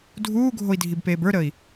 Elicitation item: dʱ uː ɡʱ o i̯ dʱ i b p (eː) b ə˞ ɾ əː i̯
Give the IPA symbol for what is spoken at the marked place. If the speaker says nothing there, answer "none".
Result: eː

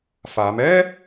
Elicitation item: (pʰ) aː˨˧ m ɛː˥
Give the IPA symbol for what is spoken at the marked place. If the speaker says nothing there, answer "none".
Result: f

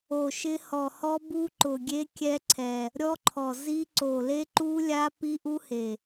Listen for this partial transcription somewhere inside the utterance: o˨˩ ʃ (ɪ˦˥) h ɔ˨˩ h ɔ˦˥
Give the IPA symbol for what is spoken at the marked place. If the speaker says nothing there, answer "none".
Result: ɪ˦˥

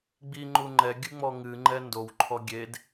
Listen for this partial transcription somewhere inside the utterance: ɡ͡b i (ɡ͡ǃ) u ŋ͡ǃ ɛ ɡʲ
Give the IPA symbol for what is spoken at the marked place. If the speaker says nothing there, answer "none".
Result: ŋ͡ǃ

